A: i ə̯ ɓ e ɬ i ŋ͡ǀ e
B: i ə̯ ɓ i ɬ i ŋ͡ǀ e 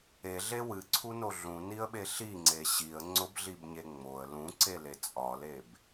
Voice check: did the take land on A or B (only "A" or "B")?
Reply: A